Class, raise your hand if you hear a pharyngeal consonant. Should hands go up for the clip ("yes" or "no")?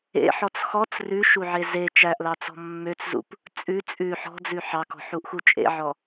yes